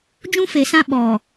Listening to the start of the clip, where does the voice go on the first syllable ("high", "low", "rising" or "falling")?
high